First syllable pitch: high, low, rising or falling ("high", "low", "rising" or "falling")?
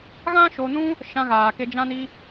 high